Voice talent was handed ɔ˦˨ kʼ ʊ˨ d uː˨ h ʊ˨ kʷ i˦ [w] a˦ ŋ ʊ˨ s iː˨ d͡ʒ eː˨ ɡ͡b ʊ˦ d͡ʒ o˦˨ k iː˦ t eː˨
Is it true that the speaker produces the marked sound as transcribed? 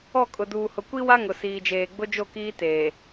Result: yes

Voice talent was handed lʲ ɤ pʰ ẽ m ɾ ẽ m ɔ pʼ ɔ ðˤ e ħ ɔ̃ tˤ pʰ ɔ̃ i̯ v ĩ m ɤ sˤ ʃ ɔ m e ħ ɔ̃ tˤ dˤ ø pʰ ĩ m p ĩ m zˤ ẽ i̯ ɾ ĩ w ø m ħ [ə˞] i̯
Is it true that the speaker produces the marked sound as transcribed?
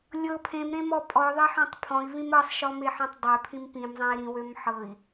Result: no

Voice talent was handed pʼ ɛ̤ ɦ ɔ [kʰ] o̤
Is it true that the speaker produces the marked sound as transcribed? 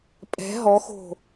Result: no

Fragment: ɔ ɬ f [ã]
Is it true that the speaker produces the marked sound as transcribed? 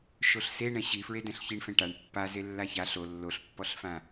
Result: yes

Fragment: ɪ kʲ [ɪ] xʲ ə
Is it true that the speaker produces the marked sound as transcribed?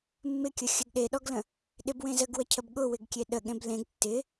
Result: no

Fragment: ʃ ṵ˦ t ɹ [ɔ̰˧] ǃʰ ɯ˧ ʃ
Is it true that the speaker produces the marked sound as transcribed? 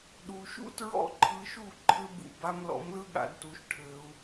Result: no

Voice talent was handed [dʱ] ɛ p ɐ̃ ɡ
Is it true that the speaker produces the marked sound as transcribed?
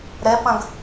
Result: no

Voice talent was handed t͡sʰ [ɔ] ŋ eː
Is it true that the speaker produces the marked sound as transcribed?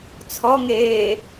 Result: yes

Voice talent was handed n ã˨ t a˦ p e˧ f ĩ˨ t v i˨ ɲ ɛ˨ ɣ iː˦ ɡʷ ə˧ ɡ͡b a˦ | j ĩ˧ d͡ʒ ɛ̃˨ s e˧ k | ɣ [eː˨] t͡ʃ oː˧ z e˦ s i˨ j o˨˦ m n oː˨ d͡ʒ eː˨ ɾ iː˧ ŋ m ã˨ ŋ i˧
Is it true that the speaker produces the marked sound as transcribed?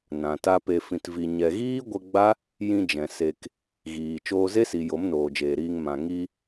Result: no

